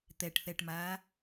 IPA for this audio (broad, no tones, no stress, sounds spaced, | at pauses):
t̪ ɛ ʈ θ ɛ ʈ m aː